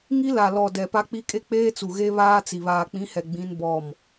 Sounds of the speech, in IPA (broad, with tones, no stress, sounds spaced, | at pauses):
ŋ i˦ l a˨ l ɔ˨ d ɛ˨ p a˦ k͡p i˦ kʼ e˦ k͡p eː˦ t͡s u˨ ɣ e˦ β aː˦ t͡s i˨ β aː˨ k͡p ĩ˨˦ h ɛ˨ ɡ͡b ĩ˦ n b ɔ˦˨ m